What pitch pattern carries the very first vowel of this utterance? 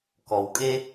low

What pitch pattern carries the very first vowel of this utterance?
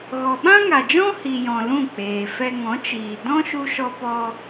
low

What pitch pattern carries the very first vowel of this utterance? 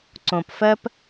low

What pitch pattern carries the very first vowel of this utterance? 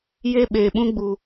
high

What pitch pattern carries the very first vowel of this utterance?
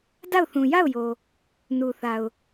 falling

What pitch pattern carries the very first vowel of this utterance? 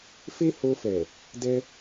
high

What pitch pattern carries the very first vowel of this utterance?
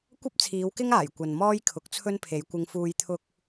high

